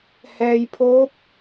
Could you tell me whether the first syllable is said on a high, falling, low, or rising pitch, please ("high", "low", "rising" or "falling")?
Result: low